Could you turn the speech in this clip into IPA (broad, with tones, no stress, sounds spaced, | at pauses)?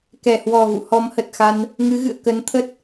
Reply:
k ɛ˧˩ h w ɔ˨˩ ɣ ṵ˧˨ h ɔ˨˦ m h ə˨˩ t̚ x a˧ n | ŋ ɨ˨˦ ɣ ɨ̰˧˨ ə̯ k ə˨˦ n t̪ʰ ə˦˥ t̚